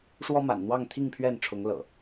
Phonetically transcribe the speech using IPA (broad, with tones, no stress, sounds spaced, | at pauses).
ʂ w ɔ˦ m a̰˨˩ n n̪ w ɑ˥˨ ŋ t̪ʰ i˥˨ ŋ pʰ ɥ ɛ˥˨ n ʈ͡ʂʰ ʊ˨˦ ŋ l ɤ̰˨˩